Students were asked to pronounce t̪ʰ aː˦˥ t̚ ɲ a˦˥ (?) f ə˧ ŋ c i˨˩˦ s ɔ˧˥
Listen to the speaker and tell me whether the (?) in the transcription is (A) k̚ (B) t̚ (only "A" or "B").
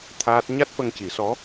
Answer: B